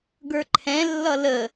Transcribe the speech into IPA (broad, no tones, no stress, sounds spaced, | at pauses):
ɡ ə˞ ǃʰ ɛ̃ lː ʌ l ə